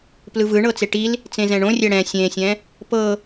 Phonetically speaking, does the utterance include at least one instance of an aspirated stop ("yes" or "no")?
no